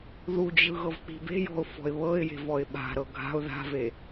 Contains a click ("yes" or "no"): no